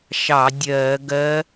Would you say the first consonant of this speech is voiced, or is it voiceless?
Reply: voiceless